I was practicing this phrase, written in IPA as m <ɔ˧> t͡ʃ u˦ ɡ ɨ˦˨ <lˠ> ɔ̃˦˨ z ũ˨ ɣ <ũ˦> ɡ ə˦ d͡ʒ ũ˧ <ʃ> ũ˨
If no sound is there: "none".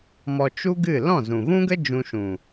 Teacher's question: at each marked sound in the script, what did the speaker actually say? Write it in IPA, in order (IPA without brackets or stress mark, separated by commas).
ɔ˧, l, ũ˦, ʃ